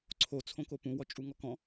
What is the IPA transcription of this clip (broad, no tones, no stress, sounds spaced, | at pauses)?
ǀʰ o t͡sʰ õ k o p ũ w ɔ t͡ʃʼ u ŋ ɔ k ɔ̃